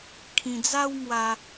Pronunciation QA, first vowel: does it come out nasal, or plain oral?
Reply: nasal